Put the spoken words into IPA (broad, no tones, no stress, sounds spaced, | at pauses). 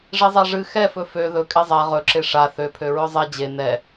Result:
ʐ e zˤ a ʐ ɨ x ɛ f ɵ f ø ð ɵ kʼ ɛ zˤ a ʁ ɵ ǁ e ʂ a θ ø pʰ ø ɹ ɵ zˤ ɛ d͡ʑ e n ɛ